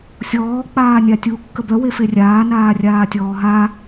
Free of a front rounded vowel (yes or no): no